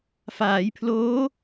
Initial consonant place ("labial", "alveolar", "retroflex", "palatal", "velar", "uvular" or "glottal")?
labial